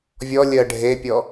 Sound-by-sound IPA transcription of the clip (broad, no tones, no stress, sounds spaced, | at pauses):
vʲ ɔ lʲ ɜ ɖʱ e pʲ ɔ